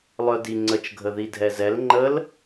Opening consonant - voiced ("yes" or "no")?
yes